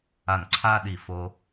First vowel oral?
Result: yes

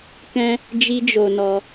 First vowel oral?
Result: no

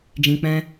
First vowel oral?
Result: no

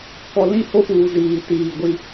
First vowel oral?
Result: yes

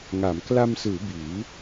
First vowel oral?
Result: yes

